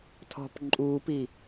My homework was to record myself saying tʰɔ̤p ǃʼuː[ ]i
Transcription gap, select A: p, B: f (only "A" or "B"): A